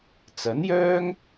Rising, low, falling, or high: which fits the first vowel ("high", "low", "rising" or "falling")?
rising